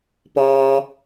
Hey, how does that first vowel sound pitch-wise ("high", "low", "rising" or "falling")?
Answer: low